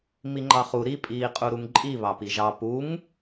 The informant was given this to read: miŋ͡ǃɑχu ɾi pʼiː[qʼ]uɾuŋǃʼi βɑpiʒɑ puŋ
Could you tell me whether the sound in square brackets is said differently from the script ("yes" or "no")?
no